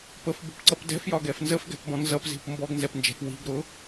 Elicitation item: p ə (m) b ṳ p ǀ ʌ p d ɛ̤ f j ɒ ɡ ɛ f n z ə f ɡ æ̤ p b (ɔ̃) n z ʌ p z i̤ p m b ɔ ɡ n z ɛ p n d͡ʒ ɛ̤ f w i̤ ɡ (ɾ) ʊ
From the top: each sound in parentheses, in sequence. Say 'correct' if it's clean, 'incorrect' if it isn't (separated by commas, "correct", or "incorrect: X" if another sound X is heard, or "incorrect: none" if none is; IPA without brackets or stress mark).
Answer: incorrect: f, correct, correct